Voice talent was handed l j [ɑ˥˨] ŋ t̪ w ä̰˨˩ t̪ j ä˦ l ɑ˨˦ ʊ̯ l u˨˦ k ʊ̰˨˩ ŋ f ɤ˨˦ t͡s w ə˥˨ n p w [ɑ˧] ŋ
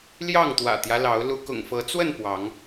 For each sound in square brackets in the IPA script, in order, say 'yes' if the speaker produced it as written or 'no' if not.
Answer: yes, no

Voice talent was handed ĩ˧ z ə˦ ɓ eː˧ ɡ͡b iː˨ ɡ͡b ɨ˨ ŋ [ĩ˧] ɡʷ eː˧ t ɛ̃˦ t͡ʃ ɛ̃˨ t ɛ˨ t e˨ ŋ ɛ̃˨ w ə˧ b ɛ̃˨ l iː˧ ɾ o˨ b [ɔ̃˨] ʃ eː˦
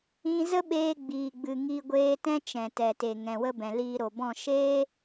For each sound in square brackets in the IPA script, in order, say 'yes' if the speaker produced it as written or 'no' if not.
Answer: no, no

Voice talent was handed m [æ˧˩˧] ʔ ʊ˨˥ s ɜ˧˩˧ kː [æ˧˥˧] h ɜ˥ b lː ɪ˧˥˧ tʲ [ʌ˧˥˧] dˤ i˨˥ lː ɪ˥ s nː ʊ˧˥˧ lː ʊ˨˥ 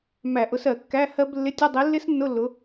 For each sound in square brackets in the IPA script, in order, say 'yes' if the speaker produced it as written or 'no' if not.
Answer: yes, yes, yes

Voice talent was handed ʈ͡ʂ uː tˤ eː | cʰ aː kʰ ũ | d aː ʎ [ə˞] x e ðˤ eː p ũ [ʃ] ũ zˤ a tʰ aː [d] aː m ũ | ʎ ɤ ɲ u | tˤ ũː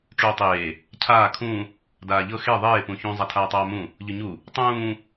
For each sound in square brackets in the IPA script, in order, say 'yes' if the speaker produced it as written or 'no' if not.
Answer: no, no, no

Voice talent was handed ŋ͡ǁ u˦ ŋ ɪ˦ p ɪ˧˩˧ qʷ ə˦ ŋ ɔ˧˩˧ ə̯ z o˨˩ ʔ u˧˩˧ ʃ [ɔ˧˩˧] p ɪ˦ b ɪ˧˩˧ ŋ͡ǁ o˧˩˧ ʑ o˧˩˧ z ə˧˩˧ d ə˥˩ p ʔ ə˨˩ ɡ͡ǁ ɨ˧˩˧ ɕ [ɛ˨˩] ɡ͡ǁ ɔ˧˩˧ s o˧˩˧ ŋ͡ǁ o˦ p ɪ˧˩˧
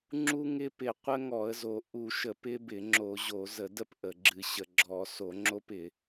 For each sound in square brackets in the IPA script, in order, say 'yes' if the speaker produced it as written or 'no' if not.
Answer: no, no

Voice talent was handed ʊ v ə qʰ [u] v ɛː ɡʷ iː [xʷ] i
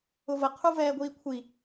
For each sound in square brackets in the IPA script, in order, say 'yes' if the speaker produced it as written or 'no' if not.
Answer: yes, no

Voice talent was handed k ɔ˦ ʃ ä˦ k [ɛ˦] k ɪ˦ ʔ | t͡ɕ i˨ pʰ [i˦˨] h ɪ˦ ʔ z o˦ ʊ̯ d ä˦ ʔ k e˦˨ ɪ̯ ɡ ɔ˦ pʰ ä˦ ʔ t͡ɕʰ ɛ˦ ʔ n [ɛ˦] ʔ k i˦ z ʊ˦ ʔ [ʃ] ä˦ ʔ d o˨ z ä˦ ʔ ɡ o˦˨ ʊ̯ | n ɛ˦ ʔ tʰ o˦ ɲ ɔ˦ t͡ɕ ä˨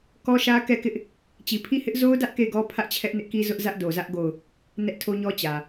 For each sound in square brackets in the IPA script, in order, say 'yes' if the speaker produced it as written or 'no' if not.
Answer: no, yes, no, no

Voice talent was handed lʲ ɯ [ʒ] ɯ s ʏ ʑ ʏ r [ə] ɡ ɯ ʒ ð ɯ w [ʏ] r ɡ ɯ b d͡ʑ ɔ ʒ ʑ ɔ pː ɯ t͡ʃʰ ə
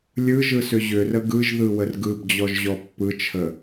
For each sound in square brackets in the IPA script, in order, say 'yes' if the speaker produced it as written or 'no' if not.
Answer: yes, yes, no

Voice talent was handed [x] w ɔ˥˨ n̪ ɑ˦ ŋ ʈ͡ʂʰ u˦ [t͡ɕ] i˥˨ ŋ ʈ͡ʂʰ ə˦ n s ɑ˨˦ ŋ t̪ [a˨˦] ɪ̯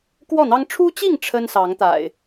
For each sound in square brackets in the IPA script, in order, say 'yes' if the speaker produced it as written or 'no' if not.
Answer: no, yes, no

